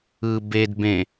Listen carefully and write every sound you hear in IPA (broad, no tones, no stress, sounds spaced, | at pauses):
ɯ b e d b ẽ